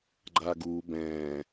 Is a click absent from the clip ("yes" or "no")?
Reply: no